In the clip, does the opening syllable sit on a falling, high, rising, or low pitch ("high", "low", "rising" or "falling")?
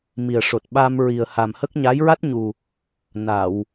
low